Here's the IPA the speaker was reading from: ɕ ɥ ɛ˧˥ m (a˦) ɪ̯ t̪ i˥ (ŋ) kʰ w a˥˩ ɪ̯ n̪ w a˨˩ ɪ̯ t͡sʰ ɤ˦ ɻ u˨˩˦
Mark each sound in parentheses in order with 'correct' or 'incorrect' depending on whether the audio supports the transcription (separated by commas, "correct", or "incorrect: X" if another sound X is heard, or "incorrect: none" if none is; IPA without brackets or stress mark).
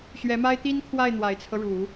incorrect: a˥, incorrect: n